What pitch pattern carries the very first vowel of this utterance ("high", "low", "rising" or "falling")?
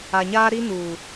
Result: low